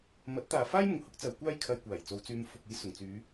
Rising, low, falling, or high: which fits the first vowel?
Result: rising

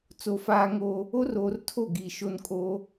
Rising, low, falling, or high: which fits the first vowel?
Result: low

